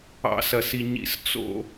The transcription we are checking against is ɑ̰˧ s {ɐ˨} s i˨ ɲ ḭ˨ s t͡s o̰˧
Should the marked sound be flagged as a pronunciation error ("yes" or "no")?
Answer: no